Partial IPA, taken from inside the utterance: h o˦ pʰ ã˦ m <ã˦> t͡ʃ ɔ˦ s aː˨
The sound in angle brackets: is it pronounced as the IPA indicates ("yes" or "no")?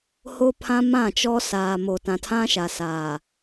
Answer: no